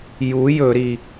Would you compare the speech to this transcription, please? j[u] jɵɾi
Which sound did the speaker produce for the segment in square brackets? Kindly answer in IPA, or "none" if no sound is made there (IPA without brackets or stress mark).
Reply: u